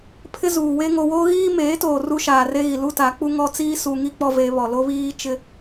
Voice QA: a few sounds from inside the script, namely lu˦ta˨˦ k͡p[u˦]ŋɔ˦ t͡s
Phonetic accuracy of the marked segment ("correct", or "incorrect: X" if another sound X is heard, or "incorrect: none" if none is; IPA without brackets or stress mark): correct